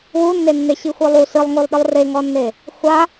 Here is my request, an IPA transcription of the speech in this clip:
wunːenːeɕi xʷɨlˠu sɨlˠŋolˠ ɗɨlˠreŋɔnːe | xʷa

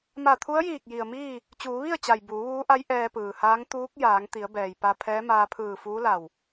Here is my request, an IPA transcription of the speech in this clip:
ma˧˩t̪ʰu˧˥ə̯jiː˧˩k̚ ji˩ə̯miː˥˨ | t͡ɕuː˩˧ʋi˥˨ə̯t͡ɕa˩j buː˩˧ʋuː˧˥ʔa˧˥j ʔɛː˧pɯː˩haː˧˥ŋ t̪uː˧˥k̚jaː˩˧ŋ t̪i˩˧ə̯bɛː˩jpa˧pʰɛː˧˥ maː˧pʰɯː˧˩fuː˧˥la˧˩w

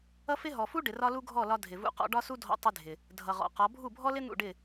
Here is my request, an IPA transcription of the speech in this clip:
ʌ˦fɪ˦ ɦɔ˨fu˦ɖɪ˨rɒ˧ lu˦ɡʱɔ˦˨lɒ˧ dʱɪ˨vṵ˧qɔ̰˧ ɖɒ˦su˦dʱɔ̰˧ tˤɪ˦dʱɪ˨ | dʱʌ˨ʁɔ̰˨qɔ˨˦ bʱu˦˨bʱɔ˦lɪ˦ n̪ṵ˦˨ɖɪ˦˨

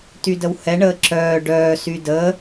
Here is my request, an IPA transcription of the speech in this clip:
tydəwhɛɳəː ǁœː ɖœːsy də

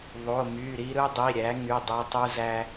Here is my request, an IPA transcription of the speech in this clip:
ðˤo˩˧˩my˩˧˩ɾi˦ ɾɯ˦dˤi˩˧˩ ɾʲæ˩˥ ŋy˩˧˩dˤu˩˧˩tˤu˦ zæ˦

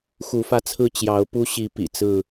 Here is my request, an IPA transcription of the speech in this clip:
xu˨˦fä˧t͡sʰɹ̩˥˨ t͡ɕjɑ˨˦ʊ̯pu˦ɕi˨˦ pḭ˨˩t͡sɹ̩˥˨

